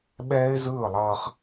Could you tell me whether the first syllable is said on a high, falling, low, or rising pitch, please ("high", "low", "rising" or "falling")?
high